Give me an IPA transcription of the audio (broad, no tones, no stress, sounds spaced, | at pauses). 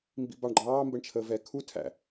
m b ḭ b ɑ ɳ ɡ͡ǃ ɑː m b ə ɳ t͡ʃʰ əː v ɛː kʰ u tʰ æ̰